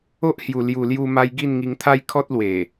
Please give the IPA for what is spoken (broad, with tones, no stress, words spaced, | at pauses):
o˦ʔhju˨˩ lju˨˩lju˧ma˧j ɡi˥˧nŋi˧ŋt̪ʰa˦j kʰɔ˦t̚lwe˨˩